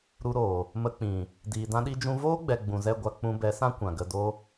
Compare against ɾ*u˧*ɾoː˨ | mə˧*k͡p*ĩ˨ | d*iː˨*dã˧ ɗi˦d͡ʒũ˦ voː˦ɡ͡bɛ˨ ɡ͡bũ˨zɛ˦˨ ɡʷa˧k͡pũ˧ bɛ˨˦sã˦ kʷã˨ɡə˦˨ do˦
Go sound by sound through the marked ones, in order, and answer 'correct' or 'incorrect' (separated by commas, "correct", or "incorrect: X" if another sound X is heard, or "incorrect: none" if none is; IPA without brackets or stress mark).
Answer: correct, correct, correct